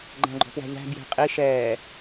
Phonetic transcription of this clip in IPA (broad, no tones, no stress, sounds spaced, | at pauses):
ɡ͡ǃ æ̃ ɡ͡ǃ ɔ̤ p w æ̤ ʎ æ̤ b j ɛ̤ qʼ i ʃ ɛː